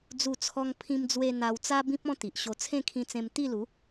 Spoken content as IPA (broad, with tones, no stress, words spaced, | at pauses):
d͡zu˥˧t͡sʰɔ˦ŋ pʰĩ˧md͡zwe˧ n̪a˧w t͡sa˦bĩ˦p̚ ɔ̃˦t̪i˨ʔ ɕo˧t͡sʰẽ˥˧kʰĩ˧t͡sẽ˧m t̪i˥˧lu˨˦